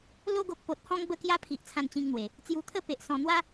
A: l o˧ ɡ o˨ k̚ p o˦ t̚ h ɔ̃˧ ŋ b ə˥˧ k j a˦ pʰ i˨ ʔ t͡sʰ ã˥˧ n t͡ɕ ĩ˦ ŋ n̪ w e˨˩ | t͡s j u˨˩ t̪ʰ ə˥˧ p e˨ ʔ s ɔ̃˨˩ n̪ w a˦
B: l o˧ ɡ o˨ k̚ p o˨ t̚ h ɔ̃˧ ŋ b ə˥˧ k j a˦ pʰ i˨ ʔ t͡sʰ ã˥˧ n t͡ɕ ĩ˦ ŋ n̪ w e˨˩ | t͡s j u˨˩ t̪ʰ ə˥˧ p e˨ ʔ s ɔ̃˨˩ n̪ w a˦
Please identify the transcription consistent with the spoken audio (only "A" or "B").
B